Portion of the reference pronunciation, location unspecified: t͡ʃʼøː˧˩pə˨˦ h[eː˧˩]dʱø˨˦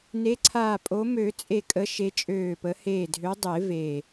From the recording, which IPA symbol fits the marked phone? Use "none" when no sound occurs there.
eː˧˩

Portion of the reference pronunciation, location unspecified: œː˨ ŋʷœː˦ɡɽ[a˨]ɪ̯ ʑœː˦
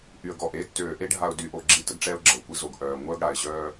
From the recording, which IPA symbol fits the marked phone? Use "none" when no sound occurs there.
a˨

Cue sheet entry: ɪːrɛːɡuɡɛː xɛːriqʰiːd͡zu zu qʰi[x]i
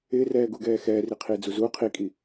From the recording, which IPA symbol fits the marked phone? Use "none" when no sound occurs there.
kʼ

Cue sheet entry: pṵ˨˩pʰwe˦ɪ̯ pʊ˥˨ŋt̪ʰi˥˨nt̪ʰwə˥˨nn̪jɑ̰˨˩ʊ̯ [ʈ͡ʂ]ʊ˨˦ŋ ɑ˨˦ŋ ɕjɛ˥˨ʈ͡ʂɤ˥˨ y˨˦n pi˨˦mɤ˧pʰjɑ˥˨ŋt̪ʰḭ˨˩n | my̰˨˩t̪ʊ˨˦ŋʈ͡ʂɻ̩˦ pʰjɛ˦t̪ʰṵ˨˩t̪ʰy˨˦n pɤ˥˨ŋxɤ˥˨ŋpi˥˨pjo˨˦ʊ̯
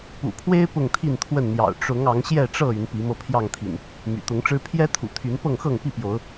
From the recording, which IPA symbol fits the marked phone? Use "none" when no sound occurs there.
ʈ͡ʂ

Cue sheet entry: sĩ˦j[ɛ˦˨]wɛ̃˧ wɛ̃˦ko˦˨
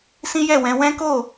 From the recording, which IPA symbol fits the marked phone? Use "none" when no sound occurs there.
ɛ˦˨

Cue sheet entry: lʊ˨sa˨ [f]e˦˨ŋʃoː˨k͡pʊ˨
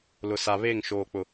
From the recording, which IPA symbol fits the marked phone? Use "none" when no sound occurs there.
β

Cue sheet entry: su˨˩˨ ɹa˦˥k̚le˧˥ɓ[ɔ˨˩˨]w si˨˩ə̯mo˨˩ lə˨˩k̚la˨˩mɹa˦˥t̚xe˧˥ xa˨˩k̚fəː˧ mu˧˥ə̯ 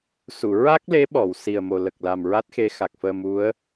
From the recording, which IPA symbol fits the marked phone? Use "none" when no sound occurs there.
ɔ˨˩˨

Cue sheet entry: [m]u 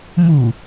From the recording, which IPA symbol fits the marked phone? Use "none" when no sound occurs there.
m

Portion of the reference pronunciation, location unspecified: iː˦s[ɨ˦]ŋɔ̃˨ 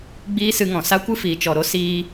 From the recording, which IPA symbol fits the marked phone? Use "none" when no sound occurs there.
ɨ˧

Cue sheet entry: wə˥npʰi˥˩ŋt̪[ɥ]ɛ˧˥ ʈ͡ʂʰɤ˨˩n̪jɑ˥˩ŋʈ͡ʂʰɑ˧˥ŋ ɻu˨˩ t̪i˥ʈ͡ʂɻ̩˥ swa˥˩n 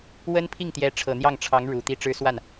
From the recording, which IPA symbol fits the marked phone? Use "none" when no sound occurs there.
j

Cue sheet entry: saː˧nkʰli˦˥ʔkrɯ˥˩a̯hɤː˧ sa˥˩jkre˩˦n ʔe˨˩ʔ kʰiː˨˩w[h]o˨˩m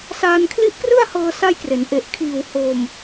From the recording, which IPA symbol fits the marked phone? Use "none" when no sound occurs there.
h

